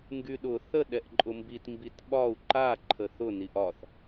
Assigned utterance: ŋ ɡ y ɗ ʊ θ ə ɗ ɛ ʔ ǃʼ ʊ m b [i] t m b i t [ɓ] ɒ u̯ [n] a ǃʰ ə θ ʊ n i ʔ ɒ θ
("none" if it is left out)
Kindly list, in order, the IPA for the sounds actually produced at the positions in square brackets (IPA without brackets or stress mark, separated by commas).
i, ɓ, ǃ